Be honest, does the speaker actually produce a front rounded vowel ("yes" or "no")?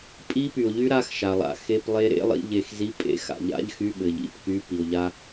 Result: yes